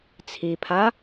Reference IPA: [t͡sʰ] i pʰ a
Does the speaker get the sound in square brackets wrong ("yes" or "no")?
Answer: no